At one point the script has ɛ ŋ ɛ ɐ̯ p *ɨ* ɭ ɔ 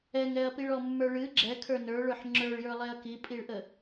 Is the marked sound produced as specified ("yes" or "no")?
no